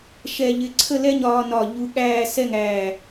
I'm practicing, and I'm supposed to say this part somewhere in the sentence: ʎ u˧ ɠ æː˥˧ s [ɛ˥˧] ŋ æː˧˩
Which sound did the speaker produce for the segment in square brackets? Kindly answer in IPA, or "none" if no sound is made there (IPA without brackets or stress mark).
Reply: ɛ˥˧